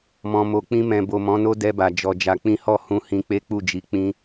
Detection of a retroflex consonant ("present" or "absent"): absent